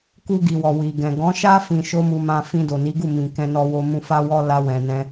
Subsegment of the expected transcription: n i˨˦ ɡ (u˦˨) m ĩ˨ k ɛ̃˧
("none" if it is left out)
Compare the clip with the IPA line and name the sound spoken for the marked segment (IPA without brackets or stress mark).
u˦˨